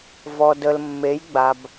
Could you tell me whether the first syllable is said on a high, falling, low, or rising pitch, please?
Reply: low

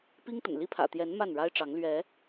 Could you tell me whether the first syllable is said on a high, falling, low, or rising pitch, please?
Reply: high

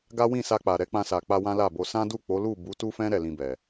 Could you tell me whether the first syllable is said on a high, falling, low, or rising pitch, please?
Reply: high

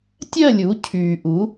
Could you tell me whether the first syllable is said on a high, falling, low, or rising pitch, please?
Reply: falling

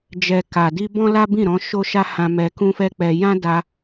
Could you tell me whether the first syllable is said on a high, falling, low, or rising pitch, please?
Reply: low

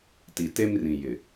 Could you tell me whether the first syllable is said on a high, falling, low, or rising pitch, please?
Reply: low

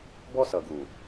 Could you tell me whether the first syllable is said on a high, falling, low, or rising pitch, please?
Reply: high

